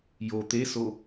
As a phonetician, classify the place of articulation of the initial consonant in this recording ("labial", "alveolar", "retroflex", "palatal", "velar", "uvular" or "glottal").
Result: palatal